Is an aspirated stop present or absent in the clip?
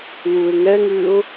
absent